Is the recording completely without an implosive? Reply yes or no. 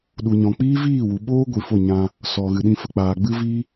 no